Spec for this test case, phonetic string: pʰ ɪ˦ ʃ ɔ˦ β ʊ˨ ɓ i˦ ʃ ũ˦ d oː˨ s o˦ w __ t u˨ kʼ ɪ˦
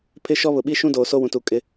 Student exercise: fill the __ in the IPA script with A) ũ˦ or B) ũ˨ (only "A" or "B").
B